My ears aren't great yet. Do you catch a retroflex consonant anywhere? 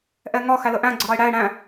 yes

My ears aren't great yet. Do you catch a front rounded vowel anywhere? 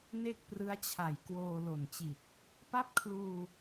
no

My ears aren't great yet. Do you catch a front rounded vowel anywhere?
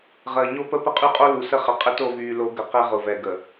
yes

